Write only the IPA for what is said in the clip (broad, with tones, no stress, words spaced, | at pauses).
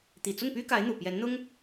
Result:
t̪i˨˩t͡sʊ˥˩ŋpy˥ka˧˥ɪ̯ n̪u˨˩pjɛ˧˥nn̪ʊ˥ŋ